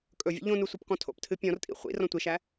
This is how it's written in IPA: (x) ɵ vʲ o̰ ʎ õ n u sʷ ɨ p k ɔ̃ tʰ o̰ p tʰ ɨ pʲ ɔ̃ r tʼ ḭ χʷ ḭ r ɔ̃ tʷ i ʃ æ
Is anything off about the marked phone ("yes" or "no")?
yes